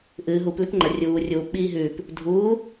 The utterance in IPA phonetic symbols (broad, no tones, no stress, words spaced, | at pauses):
ʔɨː ɦup lʉpŋ͡ǃɐ rʲuː rʲuːpɓiː ɦʉːp | dʱuː